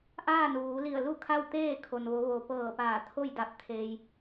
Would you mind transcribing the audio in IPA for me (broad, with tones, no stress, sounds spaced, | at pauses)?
ʔ aː˥˨ n ʋ uː˩˧ l i˧˩ ə̯ l u˥˨ kʰ a˥˨ w t̪ eː˥˨ kʰ o˩ n ʋ o˩˧ ʋ o˩ p ɤː˧˩ p aː˧˩ t̪ʰ o˥˨ j d a˧˩ p̚ t̪ʰ eː˧ j